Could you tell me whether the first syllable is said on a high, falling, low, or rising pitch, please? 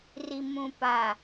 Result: low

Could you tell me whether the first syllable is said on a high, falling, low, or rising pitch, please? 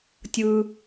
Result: high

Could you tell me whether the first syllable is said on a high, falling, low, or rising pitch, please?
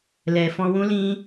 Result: low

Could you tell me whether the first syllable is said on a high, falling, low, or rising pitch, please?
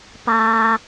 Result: low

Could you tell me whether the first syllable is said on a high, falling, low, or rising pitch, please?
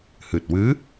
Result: low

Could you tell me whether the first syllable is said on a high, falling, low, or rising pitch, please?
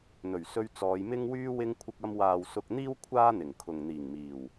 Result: low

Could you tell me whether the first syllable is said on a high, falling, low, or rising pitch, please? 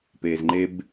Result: low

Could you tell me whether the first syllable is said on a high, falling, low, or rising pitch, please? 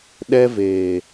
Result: high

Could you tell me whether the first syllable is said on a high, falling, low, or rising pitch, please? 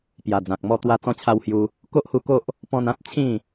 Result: low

